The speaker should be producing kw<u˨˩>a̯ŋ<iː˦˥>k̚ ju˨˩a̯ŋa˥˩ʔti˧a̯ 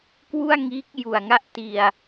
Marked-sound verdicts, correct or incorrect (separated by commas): incorrect, correct